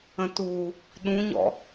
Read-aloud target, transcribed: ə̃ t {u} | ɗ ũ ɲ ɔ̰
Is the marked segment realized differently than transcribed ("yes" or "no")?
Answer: no